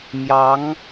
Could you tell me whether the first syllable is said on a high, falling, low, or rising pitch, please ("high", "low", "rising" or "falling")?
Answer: rising